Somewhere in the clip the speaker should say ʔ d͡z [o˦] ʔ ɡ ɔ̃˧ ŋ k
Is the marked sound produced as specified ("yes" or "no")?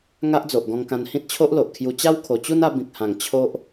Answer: no